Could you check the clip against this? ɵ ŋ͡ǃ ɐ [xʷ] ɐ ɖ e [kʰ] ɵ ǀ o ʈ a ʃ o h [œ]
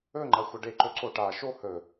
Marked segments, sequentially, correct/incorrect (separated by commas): correct, incorrect, incorrect